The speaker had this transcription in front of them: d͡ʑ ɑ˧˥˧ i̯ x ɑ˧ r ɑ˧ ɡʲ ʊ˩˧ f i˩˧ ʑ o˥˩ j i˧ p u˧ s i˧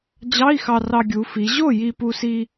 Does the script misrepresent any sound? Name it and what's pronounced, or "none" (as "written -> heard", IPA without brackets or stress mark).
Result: ʊ˩˧ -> u˩˧